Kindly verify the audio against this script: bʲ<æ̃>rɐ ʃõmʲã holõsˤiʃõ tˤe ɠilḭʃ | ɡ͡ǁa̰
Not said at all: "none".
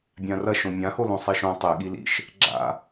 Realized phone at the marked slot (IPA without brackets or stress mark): ã